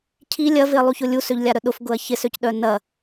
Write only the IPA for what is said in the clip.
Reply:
cʰi lʲɐvɪɐ̯lˠuçʊ lʲusøʎlʲaɾœ ɗʊfɡʊɐ̯ çɪsøcɗœ nɐ

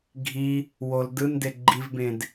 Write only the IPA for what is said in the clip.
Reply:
ɡʱi | wol dɯnde ɡ͡ǃivbẽd

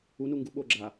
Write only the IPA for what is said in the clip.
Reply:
unuŋɡu ɓoɡ͡ǁa

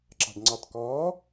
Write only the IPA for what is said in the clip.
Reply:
ǁɑ̤ɖŋ͡ǀɑtkɔː

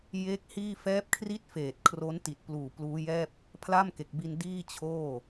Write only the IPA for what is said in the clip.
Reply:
je˦˥k̚ hiː˥˩ fɛː˦˥p̚kʰri˥˩t̚ feː˨˩t̚kʰro˦˥n ti˨˩t̚pluː˨˩pluː˦˥jɛː˥˩p̚ | pʰla˥˩mke˨˩k̚bi˧n diː˥˩t͡ɕʰoː˥˩

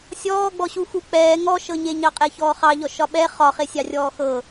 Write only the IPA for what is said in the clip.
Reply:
sʲɔːɡ͡bɔɕu xuk͡pɛː ŋɔʃɤɲeɲɑ qʼɛçɔːχɑ ʎɔʃɒɓɛ χɒχesʲɑ rʲɔːxɤ

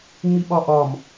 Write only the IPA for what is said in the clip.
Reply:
ŋ͡miɓɒʔɒm

